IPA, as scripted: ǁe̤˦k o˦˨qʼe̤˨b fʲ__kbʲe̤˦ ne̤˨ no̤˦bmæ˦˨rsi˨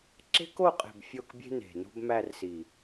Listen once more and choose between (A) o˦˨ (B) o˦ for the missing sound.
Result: A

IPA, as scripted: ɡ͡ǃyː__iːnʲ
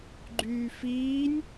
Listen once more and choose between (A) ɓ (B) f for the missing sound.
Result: B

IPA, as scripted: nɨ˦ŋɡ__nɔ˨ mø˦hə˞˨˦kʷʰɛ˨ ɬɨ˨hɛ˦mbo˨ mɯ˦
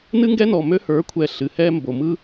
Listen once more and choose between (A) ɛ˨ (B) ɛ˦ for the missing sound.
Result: B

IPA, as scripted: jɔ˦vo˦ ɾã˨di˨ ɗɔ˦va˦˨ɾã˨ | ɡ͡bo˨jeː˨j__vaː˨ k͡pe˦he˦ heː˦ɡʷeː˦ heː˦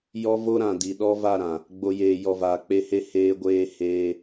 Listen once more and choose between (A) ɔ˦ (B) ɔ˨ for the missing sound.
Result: B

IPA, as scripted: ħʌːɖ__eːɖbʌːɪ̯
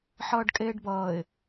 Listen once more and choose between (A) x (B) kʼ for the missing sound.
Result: B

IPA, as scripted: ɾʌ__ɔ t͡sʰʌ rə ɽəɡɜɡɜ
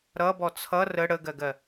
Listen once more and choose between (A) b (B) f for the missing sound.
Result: A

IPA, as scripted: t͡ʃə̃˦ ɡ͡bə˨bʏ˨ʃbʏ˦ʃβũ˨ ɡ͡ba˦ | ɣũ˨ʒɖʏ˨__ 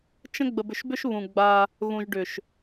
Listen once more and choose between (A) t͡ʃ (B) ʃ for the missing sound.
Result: B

